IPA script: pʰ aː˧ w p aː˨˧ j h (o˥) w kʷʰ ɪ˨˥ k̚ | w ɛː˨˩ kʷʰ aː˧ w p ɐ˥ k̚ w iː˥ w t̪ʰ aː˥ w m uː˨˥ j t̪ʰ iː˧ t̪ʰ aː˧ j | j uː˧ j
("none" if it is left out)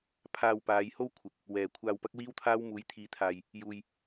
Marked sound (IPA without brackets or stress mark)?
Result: o˥